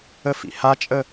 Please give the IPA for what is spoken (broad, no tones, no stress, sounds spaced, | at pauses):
ə f ḭ h a t͡ʃʼ ə